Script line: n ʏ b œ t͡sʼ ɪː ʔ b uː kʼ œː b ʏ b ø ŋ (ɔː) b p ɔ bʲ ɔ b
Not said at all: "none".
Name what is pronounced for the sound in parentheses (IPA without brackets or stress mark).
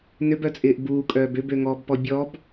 ɔː